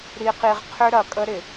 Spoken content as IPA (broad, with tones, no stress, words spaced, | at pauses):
ɾi˨qi˨ʁqʰʏ˦ ɾɐ˨kʼə˦ɾɪ˨